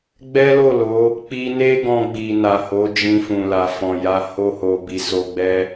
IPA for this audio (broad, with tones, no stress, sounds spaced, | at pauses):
ɡ͡b ɛ˦ l o˦˨ l o˨˦ | k͡p i˧ n e˦ ɡ ɔ̃˧ ɡ͡b i˨ n a˨ h o˨˦ d͡ʒ ĩ˧ f ũ˨ l a˨ f ɔ̃˨ j a˧ h o˧ h o˨ b i˨ s o˧ ɡ͡b ɛ˦